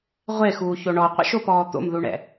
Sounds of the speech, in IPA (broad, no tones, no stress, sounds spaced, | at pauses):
ʁʷ e x uː ç o ɳ ɔ qʷ ɛ̰ ʃ o p ɔː t̪ o̰ m ð u ɳ ɛ̰